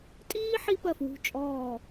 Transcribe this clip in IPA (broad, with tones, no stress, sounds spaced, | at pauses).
tʼ iː˥ ħ i˥ p ɜ˦˨ f w ṳ˦˨ t͡ʃʼ ɔː˦˨